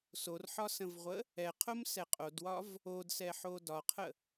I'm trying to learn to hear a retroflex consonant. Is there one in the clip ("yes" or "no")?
no